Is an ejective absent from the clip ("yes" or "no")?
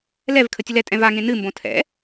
no